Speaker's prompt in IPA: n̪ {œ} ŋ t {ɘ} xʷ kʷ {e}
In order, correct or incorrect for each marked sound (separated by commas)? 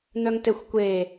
correct, correct, correct